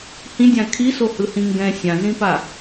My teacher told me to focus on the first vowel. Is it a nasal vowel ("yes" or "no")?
yes